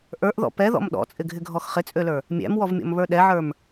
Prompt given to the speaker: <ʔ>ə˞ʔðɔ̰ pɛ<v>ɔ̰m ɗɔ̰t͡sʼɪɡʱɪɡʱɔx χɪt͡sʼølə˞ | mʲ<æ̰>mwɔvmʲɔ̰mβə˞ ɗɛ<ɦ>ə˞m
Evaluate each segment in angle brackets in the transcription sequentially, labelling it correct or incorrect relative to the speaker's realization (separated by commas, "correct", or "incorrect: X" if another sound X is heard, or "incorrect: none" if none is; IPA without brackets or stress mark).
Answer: correct, incorrect: ð, correct, incorrect: ʕ